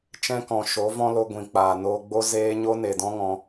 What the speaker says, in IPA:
t͡ʃ ɛ̃˦ k ɔ̃˨ ʃ o˨˦ v ɔ̃˦ l o˧ ɡʷ ĩ˨ k͡p aː˨ n oː˧ ɡ͡b o˦ z eː˦ ɲ o˦ n e˨ d ɔ̃˦ ŋ ɔ̃˧

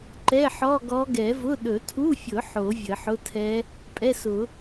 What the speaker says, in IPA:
ǃ ɛ˧˥˧ ħ ɔ˧˥˧ ɡ ɔ˧˥ ɡ ɛ˨˩˦ v ʊ˧˥˧ ɗ ɵ˨˩˦ tʰ u˧˥˧ fʲ ʊ˨˩˦ ħ o˨˩˦ vʲ ə˨˩˦ ħ ʊ˧˥˧ tʰ ɛ˧˥ | pʼ ɛ˧˥˧ s ʊ˨˩˦

